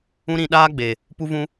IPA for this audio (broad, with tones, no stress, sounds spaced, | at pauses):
ũ˦ ɾ ĩ˧ ɗ aː˦ ɡ͡b e˨ | p u˦ v ũ˦